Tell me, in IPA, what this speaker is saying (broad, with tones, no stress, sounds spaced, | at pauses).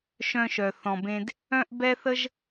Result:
ʃ œ̃˧ ʃ œ˩ θ ɔ̃˩ b ẽ˧ d | œ̃˥ ʔ b ɛ˥ θ ə˥ ʒ